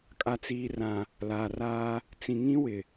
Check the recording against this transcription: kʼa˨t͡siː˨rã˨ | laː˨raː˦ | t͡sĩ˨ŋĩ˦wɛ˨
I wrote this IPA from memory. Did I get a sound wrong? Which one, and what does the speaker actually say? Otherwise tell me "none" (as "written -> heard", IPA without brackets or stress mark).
ɛ˨ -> ɪ˨